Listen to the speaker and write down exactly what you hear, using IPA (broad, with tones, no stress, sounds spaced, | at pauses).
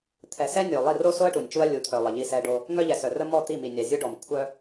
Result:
t̪ʰ ɛ˨ s ɛ˦ nʲ o˨ lˠ i˦˨ r o˦ s o˦ ɐ̯ ʈ u˨ nʲ t͡ʃ u˦ ɐ̯ lʲ u˨˦ t̪ʰ œ˨ lˠ ə˨ ʎ i˦ s ɛ˦ ɖ o˦ | ŋ œ˦ ʎ ɛ˨ s œ˨ r ə˦ m ɔ˦˨ t̪ i˦˨ m i˨ nʲ a˨ zʲ u˦ ɖ ɔ˨ m kʷʰ œ˦